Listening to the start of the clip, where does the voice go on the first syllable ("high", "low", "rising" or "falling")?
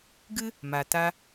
high